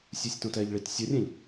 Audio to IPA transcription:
sʲ u sʲ t õ t ɛ ʎ ɭ i t sʲ ʌ rʲ ɛ̃ ʎ

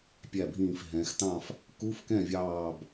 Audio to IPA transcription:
pʲ æ˧˩ bʱ ĩː˧˩ f ɦ ɛ̃ː˩˧ x t ɑ̃˥˨ f | k u˧˥˧ f k ɛ̃˥˨ vʲ ɑː˧˩ b

